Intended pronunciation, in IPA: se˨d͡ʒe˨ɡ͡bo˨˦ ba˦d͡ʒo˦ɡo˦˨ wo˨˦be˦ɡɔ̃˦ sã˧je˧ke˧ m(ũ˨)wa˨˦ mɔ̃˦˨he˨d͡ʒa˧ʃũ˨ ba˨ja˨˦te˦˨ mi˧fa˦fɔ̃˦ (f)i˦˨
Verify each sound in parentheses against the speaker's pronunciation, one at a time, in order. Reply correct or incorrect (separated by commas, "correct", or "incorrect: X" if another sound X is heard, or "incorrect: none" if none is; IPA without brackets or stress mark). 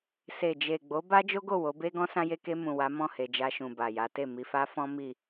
correct, incorrect: m